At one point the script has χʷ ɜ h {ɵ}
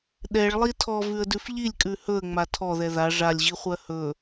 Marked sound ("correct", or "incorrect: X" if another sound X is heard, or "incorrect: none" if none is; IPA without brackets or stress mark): correct